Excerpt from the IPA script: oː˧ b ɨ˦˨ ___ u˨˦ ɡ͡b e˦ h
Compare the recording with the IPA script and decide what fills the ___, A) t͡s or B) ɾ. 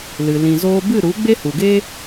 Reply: B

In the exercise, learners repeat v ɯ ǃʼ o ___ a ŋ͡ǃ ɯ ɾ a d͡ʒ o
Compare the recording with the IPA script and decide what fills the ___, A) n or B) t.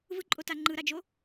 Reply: B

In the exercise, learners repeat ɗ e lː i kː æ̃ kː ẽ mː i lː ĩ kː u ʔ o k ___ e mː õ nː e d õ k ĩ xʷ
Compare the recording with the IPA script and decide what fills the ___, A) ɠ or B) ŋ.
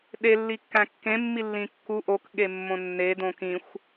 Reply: A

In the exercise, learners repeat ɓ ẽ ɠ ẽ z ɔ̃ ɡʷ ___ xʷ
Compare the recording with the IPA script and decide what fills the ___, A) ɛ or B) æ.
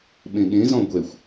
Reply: A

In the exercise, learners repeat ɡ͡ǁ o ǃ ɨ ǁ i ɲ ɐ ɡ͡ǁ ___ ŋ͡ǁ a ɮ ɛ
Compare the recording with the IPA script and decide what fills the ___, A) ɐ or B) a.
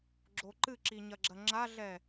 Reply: A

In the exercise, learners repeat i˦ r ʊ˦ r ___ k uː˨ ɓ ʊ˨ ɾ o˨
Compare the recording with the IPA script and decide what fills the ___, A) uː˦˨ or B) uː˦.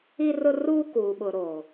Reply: B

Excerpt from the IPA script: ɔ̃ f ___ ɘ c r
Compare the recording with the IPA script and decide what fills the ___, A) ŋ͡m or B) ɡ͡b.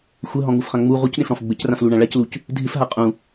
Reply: B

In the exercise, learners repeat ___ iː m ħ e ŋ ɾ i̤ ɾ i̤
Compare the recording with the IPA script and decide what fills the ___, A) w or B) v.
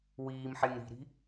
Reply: A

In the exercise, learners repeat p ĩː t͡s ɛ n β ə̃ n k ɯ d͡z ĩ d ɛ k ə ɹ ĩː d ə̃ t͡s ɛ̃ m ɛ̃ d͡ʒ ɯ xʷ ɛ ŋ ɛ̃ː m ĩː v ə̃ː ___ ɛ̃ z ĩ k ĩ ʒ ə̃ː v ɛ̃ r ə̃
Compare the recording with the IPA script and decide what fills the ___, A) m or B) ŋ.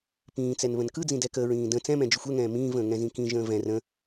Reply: B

